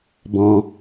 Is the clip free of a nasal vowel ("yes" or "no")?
no